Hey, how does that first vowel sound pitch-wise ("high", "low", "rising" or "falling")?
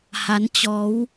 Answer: rising